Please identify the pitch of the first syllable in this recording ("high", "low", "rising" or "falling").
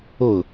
falling